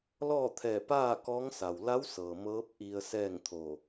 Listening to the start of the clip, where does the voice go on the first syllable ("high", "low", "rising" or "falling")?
falling